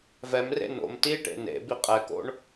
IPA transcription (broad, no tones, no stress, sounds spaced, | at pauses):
v ɛ m r ḛ n o̰ m t i ʈ ḛ n ḛ b i qʼ ɛ k o̰ ɳ